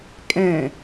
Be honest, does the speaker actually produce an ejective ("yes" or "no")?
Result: yes